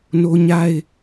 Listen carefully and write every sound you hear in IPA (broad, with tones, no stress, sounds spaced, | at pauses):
n o˦ ɲ a˦ ɪ̯